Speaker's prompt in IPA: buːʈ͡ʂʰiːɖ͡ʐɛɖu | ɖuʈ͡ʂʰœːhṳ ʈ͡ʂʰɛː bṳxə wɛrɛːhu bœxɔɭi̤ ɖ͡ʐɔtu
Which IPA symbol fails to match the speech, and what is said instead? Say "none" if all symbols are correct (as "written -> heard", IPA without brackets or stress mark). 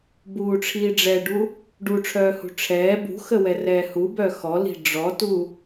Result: ɭ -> l